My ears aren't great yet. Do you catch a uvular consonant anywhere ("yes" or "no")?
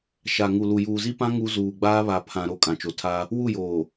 no